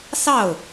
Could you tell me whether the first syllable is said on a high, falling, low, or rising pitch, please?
falling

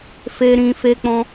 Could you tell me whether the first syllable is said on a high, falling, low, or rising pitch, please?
high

